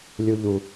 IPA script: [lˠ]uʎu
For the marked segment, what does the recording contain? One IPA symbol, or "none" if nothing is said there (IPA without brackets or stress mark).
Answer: lʲ